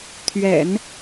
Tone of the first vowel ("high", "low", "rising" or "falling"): low